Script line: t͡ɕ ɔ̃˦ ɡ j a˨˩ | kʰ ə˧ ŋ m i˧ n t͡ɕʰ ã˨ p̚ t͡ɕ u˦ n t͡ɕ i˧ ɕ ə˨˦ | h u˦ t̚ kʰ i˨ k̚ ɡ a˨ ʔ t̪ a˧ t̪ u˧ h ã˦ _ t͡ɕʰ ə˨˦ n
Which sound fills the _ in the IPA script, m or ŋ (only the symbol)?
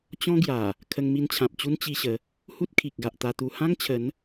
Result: ŋ